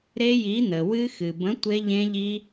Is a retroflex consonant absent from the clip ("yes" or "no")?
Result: yes